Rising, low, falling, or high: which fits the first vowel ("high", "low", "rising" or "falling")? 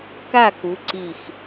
falling